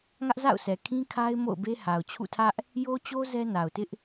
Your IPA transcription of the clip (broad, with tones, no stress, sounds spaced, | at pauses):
ŋ ä˦ ʔ z a̰˦˨ ʊ̯ s ɛ˨ kʰ ĩ˦ kʰ a˦ ɪ̯ m o̰˦˨ ʊ̯ b e˦ h a˨ ʊ̯ t͡ɕʰ ṵ˦˨ tʰ ä˦ ʔ | j o˦ t͡ɕ o˦ z ɛ˦ n a˨ ʊ̯ t ɪ˦ ʔ